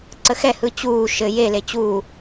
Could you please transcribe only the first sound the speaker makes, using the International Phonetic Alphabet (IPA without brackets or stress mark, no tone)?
ǀ